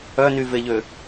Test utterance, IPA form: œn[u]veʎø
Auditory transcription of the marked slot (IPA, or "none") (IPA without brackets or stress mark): y